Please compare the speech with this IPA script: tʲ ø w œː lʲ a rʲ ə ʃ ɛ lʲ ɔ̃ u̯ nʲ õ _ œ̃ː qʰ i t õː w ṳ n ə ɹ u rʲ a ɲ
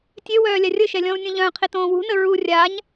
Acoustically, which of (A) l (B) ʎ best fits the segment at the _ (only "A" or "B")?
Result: B